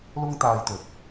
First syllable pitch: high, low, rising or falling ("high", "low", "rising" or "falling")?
high